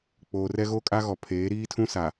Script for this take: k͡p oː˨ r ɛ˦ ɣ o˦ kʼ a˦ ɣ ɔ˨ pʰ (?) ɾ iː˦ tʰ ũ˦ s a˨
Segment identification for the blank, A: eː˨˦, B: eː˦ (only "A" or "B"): A